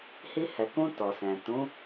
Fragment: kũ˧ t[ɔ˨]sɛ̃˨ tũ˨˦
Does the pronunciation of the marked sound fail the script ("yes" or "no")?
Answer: no